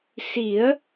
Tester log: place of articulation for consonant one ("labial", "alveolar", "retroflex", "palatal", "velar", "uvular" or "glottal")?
alveolar